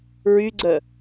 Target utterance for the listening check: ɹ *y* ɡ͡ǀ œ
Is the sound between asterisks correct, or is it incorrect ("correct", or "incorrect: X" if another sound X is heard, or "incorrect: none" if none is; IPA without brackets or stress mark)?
correct